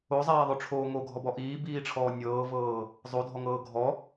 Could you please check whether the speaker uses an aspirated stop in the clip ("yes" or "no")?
yes